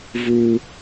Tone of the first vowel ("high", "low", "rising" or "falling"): high